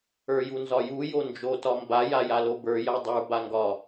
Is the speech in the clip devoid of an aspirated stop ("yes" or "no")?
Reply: yes